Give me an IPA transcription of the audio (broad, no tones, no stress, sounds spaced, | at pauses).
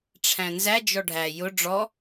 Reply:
ʈ͡ʂʰ æ̃ n z æ d͡ʒ ɔ ɖʱ æ j ʊ ɖ͡ʐ ɔ